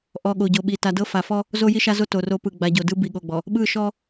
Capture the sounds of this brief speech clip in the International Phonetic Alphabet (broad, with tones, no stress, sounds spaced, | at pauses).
ʔ ɔ˨ ɠ o˨ ɟ o˨ ɓ i˨ t a˨ d ɤ˦ f a˨ f ɔ˦ | z o˦ j i˦ ʃ a˦ z o˦ t o˨ r o˦ p ɯ˨ ɡ͡b a˨ ɟ o˨ d ɯ˦ b i˨ ɠ o˨ ɡ͡b ɔ˨ | ɓ ɯ˦˨ ʃ ɔ˦